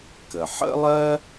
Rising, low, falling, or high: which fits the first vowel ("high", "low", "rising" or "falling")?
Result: low